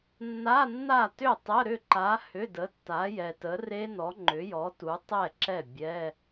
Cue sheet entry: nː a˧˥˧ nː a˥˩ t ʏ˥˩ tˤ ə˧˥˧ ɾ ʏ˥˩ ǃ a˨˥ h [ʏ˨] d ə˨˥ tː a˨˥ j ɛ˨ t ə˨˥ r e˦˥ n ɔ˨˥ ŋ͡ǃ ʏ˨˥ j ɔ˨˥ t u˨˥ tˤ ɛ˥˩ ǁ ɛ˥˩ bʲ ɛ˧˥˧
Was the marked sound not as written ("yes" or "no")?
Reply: yes